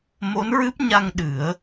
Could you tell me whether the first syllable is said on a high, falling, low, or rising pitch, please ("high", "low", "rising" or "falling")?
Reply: rising